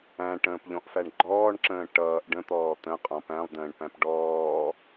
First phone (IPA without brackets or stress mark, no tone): æ̃